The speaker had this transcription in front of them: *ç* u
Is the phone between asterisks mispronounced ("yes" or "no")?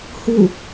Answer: yes